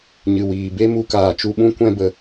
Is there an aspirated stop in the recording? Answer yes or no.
no